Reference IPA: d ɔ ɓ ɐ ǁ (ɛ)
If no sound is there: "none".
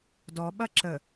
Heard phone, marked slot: ə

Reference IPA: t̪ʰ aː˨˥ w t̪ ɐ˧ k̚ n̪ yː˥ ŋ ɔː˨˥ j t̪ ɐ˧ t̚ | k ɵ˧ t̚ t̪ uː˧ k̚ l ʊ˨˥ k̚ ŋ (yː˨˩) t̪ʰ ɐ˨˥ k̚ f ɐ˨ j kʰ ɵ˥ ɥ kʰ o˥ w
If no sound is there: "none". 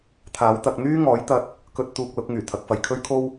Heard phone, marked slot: yː˨˩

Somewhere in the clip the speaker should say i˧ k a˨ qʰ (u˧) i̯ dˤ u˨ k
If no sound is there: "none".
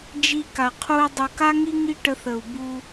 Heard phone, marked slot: u˧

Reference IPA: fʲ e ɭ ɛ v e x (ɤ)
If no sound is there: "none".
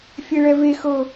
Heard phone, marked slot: ɤ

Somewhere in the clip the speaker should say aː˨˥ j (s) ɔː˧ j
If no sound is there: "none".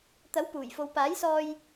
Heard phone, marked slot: s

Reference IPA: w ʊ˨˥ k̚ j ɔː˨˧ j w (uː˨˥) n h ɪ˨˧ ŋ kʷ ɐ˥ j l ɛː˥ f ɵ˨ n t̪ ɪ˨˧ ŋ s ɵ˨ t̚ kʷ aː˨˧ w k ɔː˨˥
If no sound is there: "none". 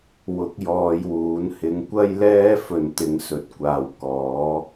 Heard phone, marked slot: uː˨˥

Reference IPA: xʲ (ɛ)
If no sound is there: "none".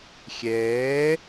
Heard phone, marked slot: ɛː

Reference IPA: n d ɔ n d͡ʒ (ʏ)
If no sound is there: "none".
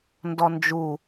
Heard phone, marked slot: u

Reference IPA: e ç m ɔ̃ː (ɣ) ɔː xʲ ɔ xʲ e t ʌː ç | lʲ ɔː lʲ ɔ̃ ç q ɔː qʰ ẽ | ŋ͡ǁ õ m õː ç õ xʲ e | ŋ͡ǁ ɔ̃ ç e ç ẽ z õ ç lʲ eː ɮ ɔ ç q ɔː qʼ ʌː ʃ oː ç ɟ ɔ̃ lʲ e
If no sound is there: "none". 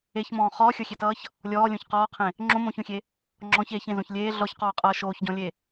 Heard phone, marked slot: χ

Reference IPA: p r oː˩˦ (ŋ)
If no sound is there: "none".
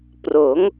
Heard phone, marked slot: ŋ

